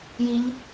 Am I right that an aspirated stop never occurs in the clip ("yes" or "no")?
yes